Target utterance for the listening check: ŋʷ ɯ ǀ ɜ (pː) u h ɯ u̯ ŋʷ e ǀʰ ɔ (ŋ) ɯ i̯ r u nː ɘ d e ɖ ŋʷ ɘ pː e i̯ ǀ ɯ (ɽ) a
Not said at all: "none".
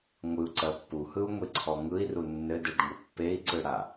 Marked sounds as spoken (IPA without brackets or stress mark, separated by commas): pː, ŋ, ɽ